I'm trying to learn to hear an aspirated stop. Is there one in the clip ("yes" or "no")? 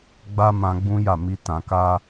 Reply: no